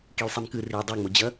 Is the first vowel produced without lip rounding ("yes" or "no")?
yes